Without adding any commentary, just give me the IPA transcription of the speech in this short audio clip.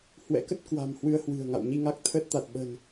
h w ɛ̰˧˥ k ə˦˥ t̚ k w a̤˨˩ m h w ɨ˧ ə̯ h w ɨ̤˨˩ ə̯ ŋ a̰˧˨ w ɲ i˧ ŋ a˦˥ k̚ t̪ʰ ə˦˥ t̚ t̪ a˨˩ t̚ ɓ ə̤˨˩ n

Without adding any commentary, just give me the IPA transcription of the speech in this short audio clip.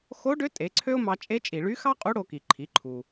x o˧˥ ɖ ø˧˥ tʼ e˩˧ ǀʰ ø˥ ʊ̯ m ɑ˧ t͡ʃʼ e˧˥ t͡ʃʼ i˩ ɭ y˧˥ x ɑ˥ qʼ u˧˥ ɽ o˧ k i˩ ǃʰ i˩˧ ǃʰ u˩

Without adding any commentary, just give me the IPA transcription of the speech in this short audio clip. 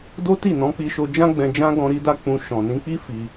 d o˦ t i˦˨ n ɔ̃˨˦ k͡p i˧ ʃ o˧ d͡ʒ ã˦ ɡ͡b ɛ̃˧ d͡ʒ ã˦ ɡ ɔ̃˧ ɾ i˦ d a˦ k͡p ũ˧ ʃ ɔ̃˨ n ĩ˧ k͡p i˦ f i˧

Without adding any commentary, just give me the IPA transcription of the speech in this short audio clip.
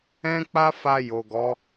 ɛ̃˦ k͡p a˦ f a˧ j o˨ ɡ ɔ˨˦

